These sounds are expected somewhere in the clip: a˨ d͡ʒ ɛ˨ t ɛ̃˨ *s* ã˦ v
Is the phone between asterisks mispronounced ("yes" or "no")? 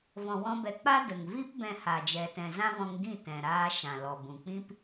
yes